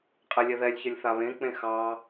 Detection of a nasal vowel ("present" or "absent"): present